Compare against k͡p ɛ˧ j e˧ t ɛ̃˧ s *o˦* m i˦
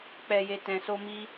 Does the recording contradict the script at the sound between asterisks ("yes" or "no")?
no